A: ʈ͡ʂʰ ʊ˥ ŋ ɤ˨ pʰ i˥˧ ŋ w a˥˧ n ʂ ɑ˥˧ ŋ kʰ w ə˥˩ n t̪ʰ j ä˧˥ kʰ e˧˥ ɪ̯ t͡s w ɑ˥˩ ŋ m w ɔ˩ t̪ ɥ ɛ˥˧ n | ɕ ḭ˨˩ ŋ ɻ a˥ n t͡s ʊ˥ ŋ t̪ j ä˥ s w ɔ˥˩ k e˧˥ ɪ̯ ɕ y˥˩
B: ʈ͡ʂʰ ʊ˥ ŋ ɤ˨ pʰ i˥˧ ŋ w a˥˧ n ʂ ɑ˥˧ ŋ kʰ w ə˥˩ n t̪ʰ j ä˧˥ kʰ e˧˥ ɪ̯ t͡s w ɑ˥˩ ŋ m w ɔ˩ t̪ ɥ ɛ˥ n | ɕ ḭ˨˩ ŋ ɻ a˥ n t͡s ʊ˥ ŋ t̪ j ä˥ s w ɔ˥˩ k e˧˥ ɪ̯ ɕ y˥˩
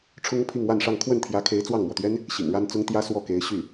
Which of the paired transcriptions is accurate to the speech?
B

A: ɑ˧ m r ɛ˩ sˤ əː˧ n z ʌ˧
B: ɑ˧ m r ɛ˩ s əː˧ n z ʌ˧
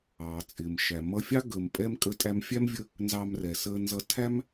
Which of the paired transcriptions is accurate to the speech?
B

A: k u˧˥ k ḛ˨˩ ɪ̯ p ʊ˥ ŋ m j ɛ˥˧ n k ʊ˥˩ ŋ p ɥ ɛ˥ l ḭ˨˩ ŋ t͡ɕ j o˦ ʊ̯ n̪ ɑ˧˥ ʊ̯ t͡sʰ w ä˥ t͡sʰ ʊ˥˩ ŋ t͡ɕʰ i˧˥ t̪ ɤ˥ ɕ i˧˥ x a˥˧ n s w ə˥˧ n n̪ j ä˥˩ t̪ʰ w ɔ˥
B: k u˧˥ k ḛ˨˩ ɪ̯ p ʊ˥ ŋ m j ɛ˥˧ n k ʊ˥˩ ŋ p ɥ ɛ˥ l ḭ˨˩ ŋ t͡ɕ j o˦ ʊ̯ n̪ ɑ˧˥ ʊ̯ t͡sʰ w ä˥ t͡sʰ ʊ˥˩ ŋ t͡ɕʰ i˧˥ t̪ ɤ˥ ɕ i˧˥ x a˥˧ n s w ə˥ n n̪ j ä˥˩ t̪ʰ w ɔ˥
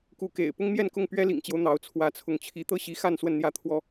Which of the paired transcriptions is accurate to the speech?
A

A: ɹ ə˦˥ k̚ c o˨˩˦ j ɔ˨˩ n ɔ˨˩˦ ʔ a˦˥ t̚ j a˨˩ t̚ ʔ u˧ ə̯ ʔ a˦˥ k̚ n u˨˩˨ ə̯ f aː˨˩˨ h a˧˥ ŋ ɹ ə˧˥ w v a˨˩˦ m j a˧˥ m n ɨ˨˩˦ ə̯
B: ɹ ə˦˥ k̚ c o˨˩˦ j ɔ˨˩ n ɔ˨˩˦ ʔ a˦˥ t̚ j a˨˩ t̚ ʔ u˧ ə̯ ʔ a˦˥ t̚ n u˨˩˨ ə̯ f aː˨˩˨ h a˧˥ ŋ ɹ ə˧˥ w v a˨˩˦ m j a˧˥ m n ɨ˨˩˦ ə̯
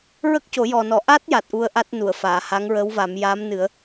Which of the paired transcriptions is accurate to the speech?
B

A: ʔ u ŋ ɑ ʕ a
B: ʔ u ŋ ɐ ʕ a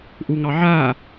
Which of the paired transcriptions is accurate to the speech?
A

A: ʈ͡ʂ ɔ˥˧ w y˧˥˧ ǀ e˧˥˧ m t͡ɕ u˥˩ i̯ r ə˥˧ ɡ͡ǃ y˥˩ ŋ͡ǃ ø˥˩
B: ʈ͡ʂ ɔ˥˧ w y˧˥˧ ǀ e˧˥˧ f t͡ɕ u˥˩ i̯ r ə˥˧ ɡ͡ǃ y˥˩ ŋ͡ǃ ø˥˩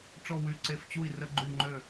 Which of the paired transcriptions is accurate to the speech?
B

